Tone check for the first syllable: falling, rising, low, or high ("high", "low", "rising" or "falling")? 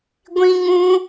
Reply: high